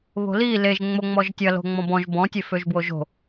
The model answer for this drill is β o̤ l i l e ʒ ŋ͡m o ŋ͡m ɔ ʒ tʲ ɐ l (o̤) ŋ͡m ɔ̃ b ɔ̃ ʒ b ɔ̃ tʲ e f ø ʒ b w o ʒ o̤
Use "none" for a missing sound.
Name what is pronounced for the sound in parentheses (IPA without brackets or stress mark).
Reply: o̤